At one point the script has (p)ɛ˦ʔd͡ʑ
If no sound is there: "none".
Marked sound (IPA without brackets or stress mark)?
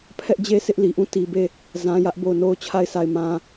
pʰ